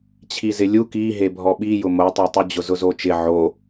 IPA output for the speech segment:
t͡ɕʰ i z ɪ lʲ u k i ɦ e bʱ ɔ ɓ i j ʊ m o tˤ ɛ tˤ u d͡ʑ ʊ z ʊ z o t͡ʃ ɪ ʕ o

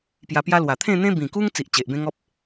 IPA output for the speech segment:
p j a˧ p j a˦ l w a˨˩ t̪ʰ ẽ˥˧ n̪ ẽ˦ b ĩ˨˩ k u˦ ŋ t͡s i˨ ʔ t͡ɕ e˨ ʔ b ẽ˦ ŋ ɔ˦ p̚

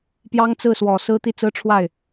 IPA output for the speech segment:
p j ɑ˥ ŋ t͡s ɹ̩˥˩ s w ɔ˨˩ s ɹ̩˥ t̪ i˥˩ t͡s ɹ̩˥ ʈ͡ʂʰ w a˥˩ ɪ̯

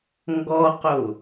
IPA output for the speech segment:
ŋ ɡ ɔ q o

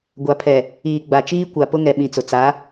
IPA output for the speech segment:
ɡʷ a˨ pʰ ɛ˨ | iː˨ ɡ͡b a˨ t͡ʃ iː˦ kʷ a˨ p ʊ˦ ŋ ɛ˨ ɓ ĩ˨ t͡s ʊ˨ t͡s a˨˦

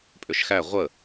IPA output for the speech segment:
pʼ ʏ ʃ x æ ʁʷ ə

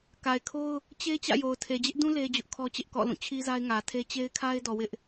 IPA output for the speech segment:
k a˨ ɪ̯ kʰ o˦ ʊ̯ | t͡ɕ e˦ t͡ɕ ä̰˦˨ j o˨ ʊ̯ tʰ e˨ d͡ʑ ɪ˦ ʔ d ũ˦ l e˦ d͡ʑ ʊ˦ ʔ kʰ ɔ˦ t͡ɕ ɪ˦ ʔ k ɔ̰˦˨ l ũ˦˨ t͡ɕʰ i˦ z a˦ ɪ̯ ŋ ä˨ tʰ e˦ t͡ɕ e˦ ɪ̯ kʰ a˦ ɪ̯ d ɔ˨ w ɪ˦ ʔ

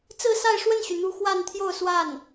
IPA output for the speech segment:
t͡s ɹ̩˥˧ s a˥˧ ɪ̯ ʂ w ə˥˩ n ɕ y˩ n̪ u˧˥ x w a˥˧ n t̪ʰ j o˥˧ ʊ̯ s w a˥˩ n

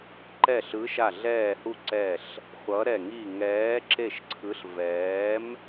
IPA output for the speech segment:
ǃ ɛ˧˩ ɬ ɯ˨˦ ʃ a˧˩ ɮ ɛː˧˩ h u˧˩ ǀ ɛ˧˩ ɬ | χʷ ʌ˨˦ ɾ ɛ˧˩ ŋ i˧˩ ŋ ɛː˨˦ ǁ e˧˩ ʃ ǀʰ ɯ˨˦ ɬ v ɛː˨˦ m

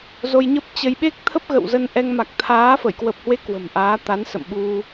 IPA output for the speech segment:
z o˧ j ɲ ə˦˥ p̚ t͡ɕ ə˧ j ɓ e˦˥ k̚ t̪ʰ ə˦˥ p̚ ɣ ə̰˧˨ w z ə˧ n ʔ ɛ˧ ŋ m a˨˩ k̚ t̪ʰ aː˨˦ f ə˧˩ j k w ə˨˩ p̚ h w e˨˦ k w ə̤˨˩ m ʔ aː˨˦ t̪ a˨˦ n s ə̰˧˨ m ɓ u˧

